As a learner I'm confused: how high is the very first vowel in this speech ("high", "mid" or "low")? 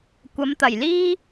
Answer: low